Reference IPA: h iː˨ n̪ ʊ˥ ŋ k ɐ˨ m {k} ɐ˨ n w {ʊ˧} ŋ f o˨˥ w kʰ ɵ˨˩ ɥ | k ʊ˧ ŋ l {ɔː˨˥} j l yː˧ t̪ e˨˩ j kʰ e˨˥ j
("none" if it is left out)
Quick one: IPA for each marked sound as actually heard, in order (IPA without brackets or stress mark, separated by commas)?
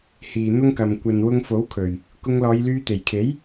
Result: kʷ, ʊ˧, ɔː˨˧